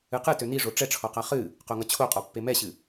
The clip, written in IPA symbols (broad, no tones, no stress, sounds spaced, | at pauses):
ɨ q ɨ t ø n i ʐ o ʈ͡ʂ ɛ ʈ͡ʂʰ ɔ q a χ ɨ | q o ŋ ʌ t͡ɕʰ o qʼ ɔ pː e m ɛ ɕ ɨ